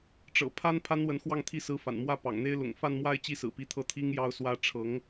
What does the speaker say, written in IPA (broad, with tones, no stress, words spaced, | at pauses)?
ʈ͡ʂɤ̰˨˩pʰa˥n pʰa˥nwə˧˥nxwɑ˥˧ŋt̪ʰi˥˩ sɹ̩˧˥fa̰˨˩nmwä˥˩ pɑ̰˨˩ŋn̪e˥ɪ̯ lʊ̰˨˩ŋfa˥˧nmwa˥˩ɪ̯ t͡ɕi˥sɹ̩˨˩pi˧˥t̪ʰɤ˥ t̪ʰi˥ŋjɑ˥ʊ̯swä˥ ʈ͡ʂʰɤ˧˥ŋ